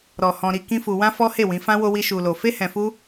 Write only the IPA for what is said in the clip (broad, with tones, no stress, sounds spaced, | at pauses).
ɾ ɔ˨ h ɔ̃˧ ɾ i˧ k ĩ˦ f u˧ w ã˦ f ɔ˦ h e˦˨ w ĩ˨˦ f ã˦ w o˦ w i˦ ʃ u˧ l o˧ f e˦ h ɛ̃˧ f u˦